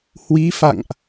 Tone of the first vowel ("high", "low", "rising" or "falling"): rising